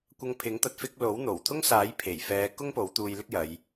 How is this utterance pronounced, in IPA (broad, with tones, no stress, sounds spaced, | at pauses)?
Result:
kʷ ɐ˧ ŋ pʰ ɪ˨˥ ŋ t̪ ɐ˧ t̚ f ɪ˧ k̚ l o˨˥ w n̪ o˨˩ w t̪ʰ ʊ˥ ŋ s aː˨˥ j pʰ e˨˩ j f ɛː˨˧ k ʊ˥ ŋ p o˨˥ w t̪ uː˧ j l ɪ˥ k̚ j ɐ˨˧ j